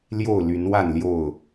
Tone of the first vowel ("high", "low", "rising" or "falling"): falling